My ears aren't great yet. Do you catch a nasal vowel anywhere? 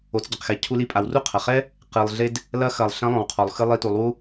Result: yes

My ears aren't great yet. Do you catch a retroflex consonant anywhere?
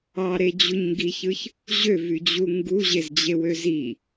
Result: no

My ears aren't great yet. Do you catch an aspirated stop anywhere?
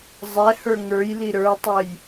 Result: no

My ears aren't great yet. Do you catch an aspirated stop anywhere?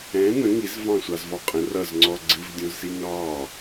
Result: no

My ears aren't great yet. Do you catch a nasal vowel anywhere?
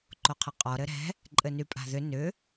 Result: no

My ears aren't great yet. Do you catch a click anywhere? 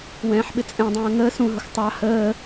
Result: no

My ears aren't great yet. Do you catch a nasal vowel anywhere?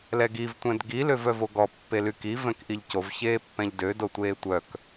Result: yes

